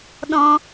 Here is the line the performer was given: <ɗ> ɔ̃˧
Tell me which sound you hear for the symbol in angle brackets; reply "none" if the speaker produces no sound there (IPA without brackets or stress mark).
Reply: ɗ